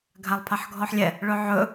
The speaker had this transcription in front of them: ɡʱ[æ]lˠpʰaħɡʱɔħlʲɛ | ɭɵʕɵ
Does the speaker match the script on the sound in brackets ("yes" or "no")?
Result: no